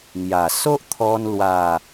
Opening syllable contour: low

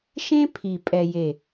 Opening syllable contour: high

